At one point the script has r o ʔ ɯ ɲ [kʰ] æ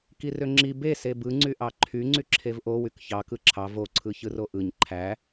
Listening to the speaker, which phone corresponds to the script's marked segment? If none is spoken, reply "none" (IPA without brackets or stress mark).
ǃʰ